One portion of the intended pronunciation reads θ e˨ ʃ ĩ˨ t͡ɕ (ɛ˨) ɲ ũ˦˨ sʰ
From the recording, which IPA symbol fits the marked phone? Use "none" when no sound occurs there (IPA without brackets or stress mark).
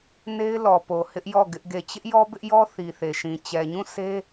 ɛ˨